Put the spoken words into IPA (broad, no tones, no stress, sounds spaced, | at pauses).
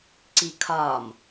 ǀ i kʰ ɒ m